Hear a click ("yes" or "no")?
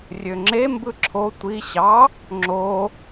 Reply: yes